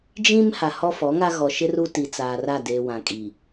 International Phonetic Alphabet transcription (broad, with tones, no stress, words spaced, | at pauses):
d͡ʒĩ˦m ha˨hɔ˦fɔ˨˦ŋa˦ ɣɔ˨ʃɪ˦ ru˦ti˨ t͡saː˨ra˦˨deː˨ wã˨kʼiː˨